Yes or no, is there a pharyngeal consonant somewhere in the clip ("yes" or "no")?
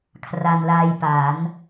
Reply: no